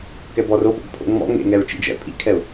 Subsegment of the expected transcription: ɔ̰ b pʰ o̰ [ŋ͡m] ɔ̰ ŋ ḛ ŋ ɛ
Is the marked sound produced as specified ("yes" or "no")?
yes